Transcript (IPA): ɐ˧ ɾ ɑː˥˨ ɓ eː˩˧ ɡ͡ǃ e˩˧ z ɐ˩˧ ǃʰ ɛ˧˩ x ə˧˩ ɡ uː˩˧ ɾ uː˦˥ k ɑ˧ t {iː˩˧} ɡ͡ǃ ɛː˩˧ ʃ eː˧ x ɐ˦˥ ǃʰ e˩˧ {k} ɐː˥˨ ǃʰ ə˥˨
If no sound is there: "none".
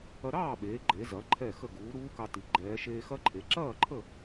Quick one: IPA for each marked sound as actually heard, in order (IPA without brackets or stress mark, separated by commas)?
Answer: i˩˧, ǁ